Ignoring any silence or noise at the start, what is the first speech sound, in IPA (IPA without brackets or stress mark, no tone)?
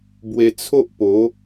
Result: b